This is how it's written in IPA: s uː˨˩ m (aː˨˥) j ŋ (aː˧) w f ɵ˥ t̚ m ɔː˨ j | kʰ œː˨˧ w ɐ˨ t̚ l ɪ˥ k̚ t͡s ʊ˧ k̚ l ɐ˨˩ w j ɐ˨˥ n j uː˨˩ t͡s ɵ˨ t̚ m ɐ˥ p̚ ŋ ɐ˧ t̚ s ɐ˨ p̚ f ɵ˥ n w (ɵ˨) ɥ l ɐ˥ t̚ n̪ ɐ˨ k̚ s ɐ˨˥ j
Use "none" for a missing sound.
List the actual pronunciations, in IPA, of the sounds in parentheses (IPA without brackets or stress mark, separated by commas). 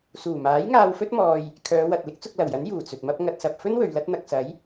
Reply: aː˨˥, aː˧, ɵ˨